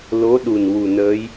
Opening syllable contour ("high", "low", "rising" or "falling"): rising